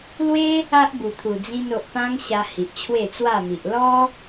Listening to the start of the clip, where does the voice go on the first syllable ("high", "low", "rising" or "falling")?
high